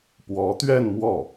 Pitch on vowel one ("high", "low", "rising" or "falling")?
rising